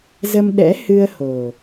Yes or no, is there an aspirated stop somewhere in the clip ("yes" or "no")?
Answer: no